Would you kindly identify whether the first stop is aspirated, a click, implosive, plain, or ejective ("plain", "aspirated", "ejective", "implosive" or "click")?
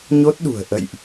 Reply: plain